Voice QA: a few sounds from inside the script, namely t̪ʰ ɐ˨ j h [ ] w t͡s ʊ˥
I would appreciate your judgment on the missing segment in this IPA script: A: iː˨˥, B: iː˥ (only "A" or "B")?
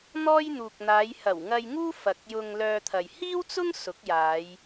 B